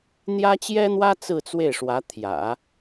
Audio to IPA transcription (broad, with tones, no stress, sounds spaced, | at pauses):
n̪ j ä˥ t͡ɕ j ɛ˥ n̪ w ä˥ t͡s ɹ̩˥˧ t͡s w e˥˩ ɪ̯ ʂ w ä˧˥ t̪ʰ j ä̰˨˩˦